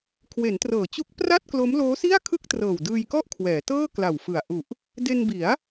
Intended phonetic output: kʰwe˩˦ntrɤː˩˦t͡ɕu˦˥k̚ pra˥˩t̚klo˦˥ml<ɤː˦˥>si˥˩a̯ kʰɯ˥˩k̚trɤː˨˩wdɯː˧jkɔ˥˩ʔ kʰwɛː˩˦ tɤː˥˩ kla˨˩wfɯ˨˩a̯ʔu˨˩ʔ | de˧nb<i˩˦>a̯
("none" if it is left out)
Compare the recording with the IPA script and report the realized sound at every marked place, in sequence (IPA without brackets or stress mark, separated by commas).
oː˦˥, i˩˦